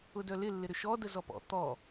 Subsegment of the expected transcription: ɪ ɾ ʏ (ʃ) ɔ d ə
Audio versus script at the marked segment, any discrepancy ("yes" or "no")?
no